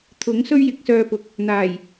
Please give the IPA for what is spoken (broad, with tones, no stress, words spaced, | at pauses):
t̪ʰʊ˨˥ŋ sɵ˥ɥjɪ˨˥k̚sœː˧pʊ˨˥k̚ | n̪aː˨˩j